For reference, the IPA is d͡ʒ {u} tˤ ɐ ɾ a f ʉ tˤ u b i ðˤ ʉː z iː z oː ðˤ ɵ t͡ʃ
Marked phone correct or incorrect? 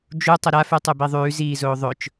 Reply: correct